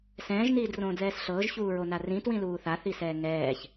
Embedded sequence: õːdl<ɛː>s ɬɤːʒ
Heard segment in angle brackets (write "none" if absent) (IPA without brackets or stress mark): ɛː